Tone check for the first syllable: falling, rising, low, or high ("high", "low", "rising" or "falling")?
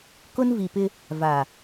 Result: high